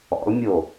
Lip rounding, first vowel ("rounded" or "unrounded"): rounded